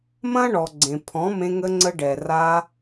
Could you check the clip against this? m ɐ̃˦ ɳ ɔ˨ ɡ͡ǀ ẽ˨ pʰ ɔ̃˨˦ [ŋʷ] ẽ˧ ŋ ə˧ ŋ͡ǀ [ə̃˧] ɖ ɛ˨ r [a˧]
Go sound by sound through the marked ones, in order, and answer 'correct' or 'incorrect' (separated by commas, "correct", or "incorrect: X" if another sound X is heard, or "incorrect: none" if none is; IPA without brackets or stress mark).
incorrect: m, incorrect: ə˧, correct